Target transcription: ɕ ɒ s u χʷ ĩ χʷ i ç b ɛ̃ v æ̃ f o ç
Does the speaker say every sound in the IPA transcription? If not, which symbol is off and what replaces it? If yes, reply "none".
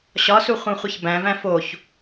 ɛ̃ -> æ̃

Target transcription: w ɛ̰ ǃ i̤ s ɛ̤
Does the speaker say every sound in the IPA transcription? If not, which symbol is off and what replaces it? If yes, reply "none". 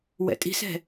ǃ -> tʼ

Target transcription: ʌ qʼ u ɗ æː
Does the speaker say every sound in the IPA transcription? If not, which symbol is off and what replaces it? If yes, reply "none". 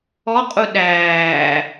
ʌ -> ɔ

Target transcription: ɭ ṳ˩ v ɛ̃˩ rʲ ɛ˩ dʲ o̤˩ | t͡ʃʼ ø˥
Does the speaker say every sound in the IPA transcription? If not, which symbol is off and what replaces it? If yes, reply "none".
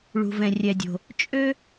none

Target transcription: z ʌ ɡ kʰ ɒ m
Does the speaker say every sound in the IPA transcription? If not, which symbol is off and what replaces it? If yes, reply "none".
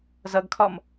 none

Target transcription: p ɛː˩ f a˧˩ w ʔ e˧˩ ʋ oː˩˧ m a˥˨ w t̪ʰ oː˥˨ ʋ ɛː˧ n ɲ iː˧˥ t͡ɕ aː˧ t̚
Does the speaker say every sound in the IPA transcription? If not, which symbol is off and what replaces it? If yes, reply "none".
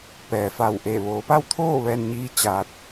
m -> p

